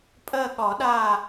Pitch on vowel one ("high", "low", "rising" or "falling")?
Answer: falling